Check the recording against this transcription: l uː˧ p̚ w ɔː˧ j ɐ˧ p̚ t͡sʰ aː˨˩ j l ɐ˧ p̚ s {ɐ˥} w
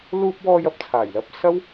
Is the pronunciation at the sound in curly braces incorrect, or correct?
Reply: correct